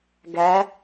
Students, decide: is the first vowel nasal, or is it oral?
oral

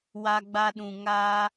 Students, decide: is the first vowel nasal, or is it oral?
oral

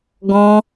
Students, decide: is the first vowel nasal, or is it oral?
nasal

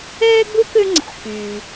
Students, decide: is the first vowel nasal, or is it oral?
oral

